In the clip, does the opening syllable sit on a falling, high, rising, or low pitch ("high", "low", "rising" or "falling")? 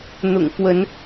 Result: low